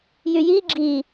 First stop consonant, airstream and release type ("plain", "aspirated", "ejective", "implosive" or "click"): click